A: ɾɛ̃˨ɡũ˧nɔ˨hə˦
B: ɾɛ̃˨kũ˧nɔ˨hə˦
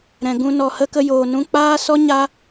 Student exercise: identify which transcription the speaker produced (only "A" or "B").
A